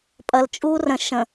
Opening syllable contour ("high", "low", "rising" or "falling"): low